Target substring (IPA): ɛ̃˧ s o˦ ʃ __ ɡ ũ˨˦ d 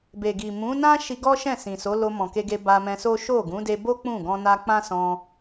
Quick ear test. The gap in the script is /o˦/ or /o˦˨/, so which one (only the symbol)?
o˦˨